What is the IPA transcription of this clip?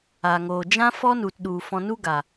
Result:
a˨ŋoː˨ d͡ʒã˦fɔ˦nu˨tɗu˨ fɔ̃˧nu˦ɡa˨

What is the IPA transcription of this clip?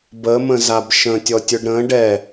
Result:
bəmə̃ zabʃə̃tʲɔ tʲʊɖɾə̃ ɖɛ

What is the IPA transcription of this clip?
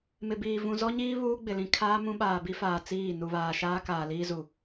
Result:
mɪ˨biː˨ vũ˨zɔ˦ɲiː˦ βuː˦ɡ͡bɪ˨ lĩ˨ kʰaː˦mũ˦ ɓaː˨bi˦faː˨ t͡siː˦˨ nu˨βaː˨ʃaː˦ kaː˨liː˦zu˨

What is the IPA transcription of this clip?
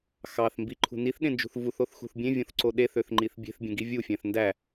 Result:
xɑθ mbiǃʰṳ niθɗẽnd͡ʒṳθ vuθoθxṳθ bʲẽvʲõθǀo ɗeθøθŋ͡ǃiθ bʲe̤θbʲẽɡi vʲufʲæ̃θ ndæ

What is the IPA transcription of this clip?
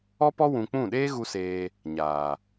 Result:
ɔ˦pɔ˦ wũ˧k͡pũ˦˨ ɗeː˦ɣu˧ seː˧ | ɲaː˨

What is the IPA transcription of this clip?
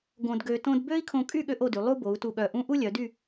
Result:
ɡõ˧dɡø˧tõ˥d bø˥i̯kʰõ˧kʼy˥˧ ɠø˥ʔo˥˧dy˩˧ lˠu˥bo˩˧u̯ tu˧˩ɠœ˧˩ʔũ˥ ʔu˥lʲœ˩˧dy˥˧

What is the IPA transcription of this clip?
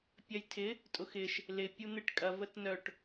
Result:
pʲɐjtʰɪ | tʼʊxɪʃ | lɪ pʲun̪ɪʈ kʼɐ vətnœʈ

